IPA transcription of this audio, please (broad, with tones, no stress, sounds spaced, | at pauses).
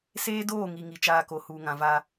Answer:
s eː˦ d oː˦˨ ŋ i˨ ŋ i˨ t͡ʃ aː˦ k o˨ h uː˨ ŋ ã˨ v aː˦